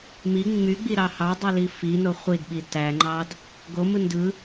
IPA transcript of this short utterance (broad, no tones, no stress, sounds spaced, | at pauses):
m i ŋ͡m y ɡ͡b i ɾ ɑ h ɑ dˤ i l i f i n o χʷ i d ɓ i t æ ŋ͡ǃ ɑ d | ɡ o m ɯ n d ɯ